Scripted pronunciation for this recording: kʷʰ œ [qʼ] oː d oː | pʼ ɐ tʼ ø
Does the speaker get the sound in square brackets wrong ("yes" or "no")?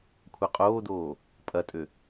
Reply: no